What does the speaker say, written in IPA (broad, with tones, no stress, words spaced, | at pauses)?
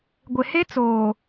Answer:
ɡʷɪ˨ he˦t͡soː˨